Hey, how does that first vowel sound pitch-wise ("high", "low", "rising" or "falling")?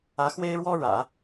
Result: rising